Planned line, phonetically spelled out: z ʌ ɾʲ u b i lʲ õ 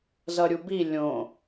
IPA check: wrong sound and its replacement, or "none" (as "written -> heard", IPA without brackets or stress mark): none